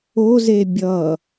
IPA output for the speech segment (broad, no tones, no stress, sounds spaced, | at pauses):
o z e bʲ ʌ